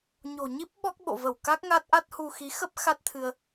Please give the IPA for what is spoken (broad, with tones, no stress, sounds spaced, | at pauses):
ɲ o̤˨˩ ɲ i˦˥ p̚ ɓ ɔ˦˥ k̚ ɓ o̰˧˨ v ə˧˩ w k a˦˥ k̚ ŋ a˦˥ t̚ ʔ a˦˥ t̚ h u˧ x i˨˦ x ə˦˥ p̚ x a˦˥ t̚ t̪ʰ ɨ˧ ə̯